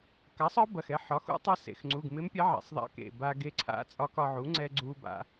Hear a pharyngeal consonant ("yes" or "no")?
yes